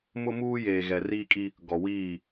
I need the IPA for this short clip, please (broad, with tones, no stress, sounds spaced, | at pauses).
m ʊ˦ m uː˦ j eː˨ ɣ ɛ˨ r iː˦ kʼ i˦ | ɡ ɔ˨ w iː˦˨